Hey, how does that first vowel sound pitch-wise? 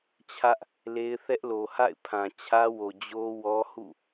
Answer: high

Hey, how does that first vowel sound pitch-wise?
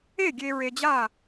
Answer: falling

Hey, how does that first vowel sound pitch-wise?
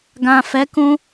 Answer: low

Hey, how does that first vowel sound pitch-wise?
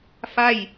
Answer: falling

